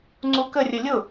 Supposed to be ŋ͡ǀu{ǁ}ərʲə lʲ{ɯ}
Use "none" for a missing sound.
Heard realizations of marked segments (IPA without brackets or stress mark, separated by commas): k, ʊ